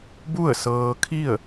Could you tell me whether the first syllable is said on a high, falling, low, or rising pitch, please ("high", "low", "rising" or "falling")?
falling